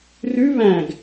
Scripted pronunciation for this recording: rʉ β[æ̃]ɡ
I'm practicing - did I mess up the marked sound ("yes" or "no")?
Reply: no